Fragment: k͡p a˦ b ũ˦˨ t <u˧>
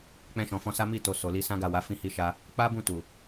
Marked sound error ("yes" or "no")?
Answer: yes